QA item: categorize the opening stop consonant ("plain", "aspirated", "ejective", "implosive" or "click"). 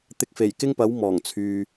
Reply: plain